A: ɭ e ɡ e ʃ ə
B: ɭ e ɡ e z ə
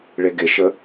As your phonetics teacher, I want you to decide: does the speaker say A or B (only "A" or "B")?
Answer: A